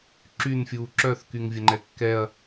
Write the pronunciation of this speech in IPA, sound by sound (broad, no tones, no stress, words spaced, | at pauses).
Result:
ǁynfʲuː ǁœθkyŋvʲəŋ͡ǃɛ kːɛɐ̯